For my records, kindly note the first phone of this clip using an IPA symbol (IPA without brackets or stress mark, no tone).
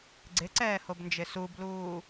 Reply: ɡ͡ǀ